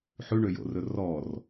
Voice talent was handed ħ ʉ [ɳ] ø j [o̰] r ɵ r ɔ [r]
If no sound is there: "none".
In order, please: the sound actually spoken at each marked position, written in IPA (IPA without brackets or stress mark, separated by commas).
ɳ, o̰, r